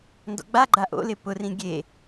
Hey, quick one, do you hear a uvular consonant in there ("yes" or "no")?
no